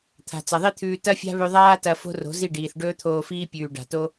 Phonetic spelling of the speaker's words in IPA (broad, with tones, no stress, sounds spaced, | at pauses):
t̪ʰ a̤˨ t͡s ɐ˨ ðˤ i˦ t̪ʰ ʉː˧ t ɐ˦ fʲ a̤˦ β ʉ˧ ðˤ aː˦ t ɐ˧ f o̤˦ r o̤˨˦ z i˦˨ ɖ iː˨ θ ɖ ɵː˦ t̪ʰ oː˧ f iː˦ pʲ ʉː˨ ɖ a̤˨ t o˦